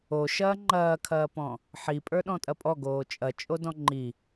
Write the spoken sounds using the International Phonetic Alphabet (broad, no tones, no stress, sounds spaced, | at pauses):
o ʃ ɐː ŋ͡ǃ ɐː kʰ ɐː p ɔ̃ | ħ i pʼ ə˞ ɗ ɔ̃ tʼ ɐ pʼ ɔ ɡ oː t͡ʃʼ ɐ t͡ʃʼ o d ɔ̃ ŋ͡ǃ i